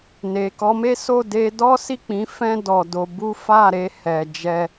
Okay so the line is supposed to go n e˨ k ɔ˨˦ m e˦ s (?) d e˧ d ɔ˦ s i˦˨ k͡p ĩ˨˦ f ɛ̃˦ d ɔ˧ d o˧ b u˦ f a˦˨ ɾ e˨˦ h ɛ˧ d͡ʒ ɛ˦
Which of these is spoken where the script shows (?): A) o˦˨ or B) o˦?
A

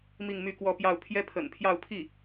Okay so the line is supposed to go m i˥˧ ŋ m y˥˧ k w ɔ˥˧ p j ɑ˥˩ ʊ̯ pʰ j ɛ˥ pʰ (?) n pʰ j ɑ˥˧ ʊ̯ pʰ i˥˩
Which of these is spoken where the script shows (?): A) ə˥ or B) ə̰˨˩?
B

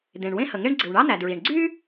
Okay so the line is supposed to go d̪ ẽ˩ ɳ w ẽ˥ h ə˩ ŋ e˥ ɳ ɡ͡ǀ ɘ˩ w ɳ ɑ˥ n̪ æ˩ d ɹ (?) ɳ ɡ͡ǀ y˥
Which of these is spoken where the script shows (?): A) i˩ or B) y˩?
A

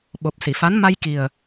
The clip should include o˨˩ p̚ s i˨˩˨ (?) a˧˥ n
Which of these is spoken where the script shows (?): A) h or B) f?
B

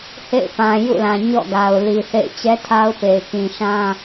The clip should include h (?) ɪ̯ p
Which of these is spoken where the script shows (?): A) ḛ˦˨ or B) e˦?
A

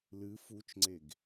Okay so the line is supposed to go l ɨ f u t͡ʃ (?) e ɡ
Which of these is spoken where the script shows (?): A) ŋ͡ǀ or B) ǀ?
A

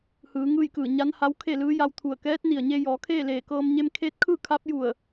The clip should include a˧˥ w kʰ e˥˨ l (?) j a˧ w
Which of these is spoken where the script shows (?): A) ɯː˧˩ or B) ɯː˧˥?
B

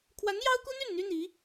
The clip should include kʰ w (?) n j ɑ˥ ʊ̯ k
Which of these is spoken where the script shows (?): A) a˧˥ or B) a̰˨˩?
A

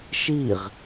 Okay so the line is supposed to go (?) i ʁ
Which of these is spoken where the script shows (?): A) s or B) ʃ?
B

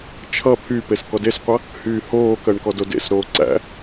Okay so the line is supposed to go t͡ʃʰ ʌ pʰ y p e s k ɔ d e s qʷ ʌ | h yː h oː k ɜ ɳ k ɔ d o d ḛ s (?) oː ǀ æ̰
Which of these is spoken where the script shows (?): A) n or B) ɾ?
B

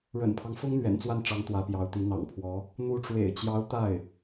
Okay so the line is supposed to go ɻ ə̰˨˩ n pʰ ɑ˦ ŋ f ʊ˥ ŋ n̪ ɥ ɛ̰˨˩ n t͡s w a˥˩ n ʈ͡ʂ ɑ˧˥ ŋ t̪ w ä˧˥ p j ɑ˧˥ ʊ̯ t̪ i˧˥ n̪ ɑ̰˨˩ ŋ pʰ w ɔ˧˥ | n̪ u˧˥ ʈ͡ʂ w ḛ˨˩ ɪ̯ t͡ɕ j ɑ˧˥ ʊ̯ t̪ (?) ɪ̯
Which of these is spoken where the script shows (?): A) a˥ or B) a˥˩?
B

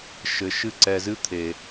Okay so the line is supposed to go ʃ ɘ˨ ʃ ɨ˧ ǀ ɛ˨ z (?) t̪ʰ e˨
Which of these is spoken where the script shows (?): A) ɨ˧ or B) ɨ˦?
A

